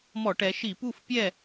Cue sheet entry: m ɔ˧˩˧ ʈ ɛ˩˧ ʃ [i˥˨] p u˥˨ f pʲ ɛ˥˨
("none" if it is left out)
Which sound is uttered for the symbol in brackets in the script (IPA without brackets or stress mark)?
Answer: i˧˩˧